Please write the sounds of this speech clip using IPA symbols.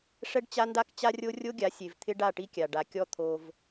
ʂ ɛ˦ ɖ t͡ɕ a˦ n d a˦ k t͡ɕ a˦ rʲ o˦ rʲ o˦ ɡʲ a˨˦ sʲ e˨ v t̪ʰ ɪ˦ ɖ a˦˨ ʈ i˦ kʲ a˨ ɖ a˨ kʲ ɔ˦ t̪ʰ o˦ v

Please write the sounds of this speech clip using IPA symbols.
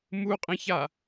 m u qʼ ĩ ç a

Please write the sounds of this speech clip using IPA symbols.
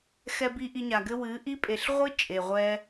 x ɛ˧ b i˧ ʔ i˧ ɲ a˨ ɡ ɘ˦ w ɨ˨˦ ʔ i˦ pʼ e˨ ɬ ʁʷ ɨ˦ t͡ʃʼ e˨ ʁʷ ɛ˦

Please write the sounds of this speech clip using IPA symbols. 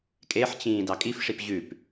kʼ e ħ t͡ɕ ĩː d ɑ kʼ i f ʂ i p ʑ ʉ p

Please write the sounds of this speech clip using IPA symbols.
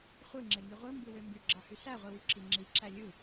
χʷ ɯ ŋ͡ǁ e ŋ i ʁʷ ɯ m b ɯ w ø m b y ɡ͡ǁ ɑ h y s æ ʁʷ i w y ǁ i ŋ͡ǁ i ǁ æ lʲ ɯ

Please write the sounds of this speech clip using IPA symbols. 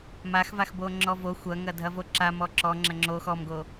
m a x v a x b o ŋ͡ǁ ɔ v o xʷ ɐ ŋ ɐ dʱ ɐ v o ǁ a m ɔ ǁ ɔ ŋ͡ǁ ɐ ŋ͡ǁ o x ɔ m ɡ o

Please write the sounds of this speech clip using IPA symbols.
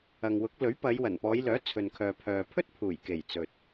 ɐ˨ ŋ w ʊ˨˥ k̚ l ɵ˨˥ ɥ p ɐ˨˧ j w ɐ˨˩ n p ɔː˨˧ j l œː˨˥ t͡sʰ ɵ˨ n kʰ œː˨ pʰ œː˨ pʰ ɵ˥ t̚ pʰ uː˨˩ j k e˨˩ j t͡s ɵ˨ t̚

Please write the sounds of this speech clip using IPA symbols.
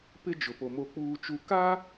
p ɪ˦ d͡ʒ ʊ˨ p o˨ m o˨ k͡p uː˨ t͡ʃ u˨ k a˦

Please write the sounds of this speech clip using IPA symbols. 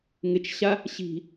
ŋ ɪ t͡ʃ ɕ a | ɕ i̤

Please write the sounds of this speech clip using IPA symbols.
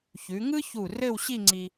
ç ʉ˩˧ ŋ ɯ˥ ç u˧˩ r ɘ˥˧ w ɕ i˥˧ ŋ͡ǀ i˧

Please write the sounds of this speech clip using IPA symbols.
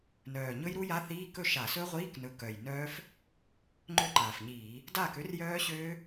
n œː˨˩ ɲ ɵ˦˥ j ɾ u˦˥ j a˧˥˧ θ iː˧˥˧ k ɵ˥˩ ʃ a˧˩˧ s ɵ˦˥ ʁʷ iː˧˥˧ k n ɵ˨˦ k œ˨˩ j n œː˦˥ f | ŋ͡ǃ ø˥˩ ǃ aː˨˩ f ɲ iː˧˩˧ | d aː˥˩ k ø˦˥ r j œː˦˥ ɕ øː˦˥

